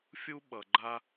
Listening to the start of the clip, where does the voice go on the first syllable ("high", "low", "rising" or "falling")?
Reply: high